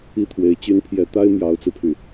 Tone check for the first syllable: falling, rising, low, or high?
high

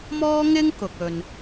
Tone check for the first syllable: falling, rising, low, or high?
high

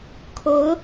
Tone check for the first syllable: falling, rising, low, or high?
rising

